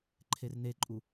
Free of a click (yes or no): no